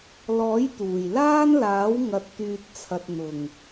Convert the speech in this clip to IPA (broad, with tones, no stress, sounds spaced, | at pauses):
l ɔː˨˥ j t̪ uː˨˩ j l aː˥ n l aː˨˥ w ŋ ɐ˨ t̚ t̪ yː˨ t̚ t͡sʰ ɐ˨ t̚ n̪ ʊ˨˩ ŋ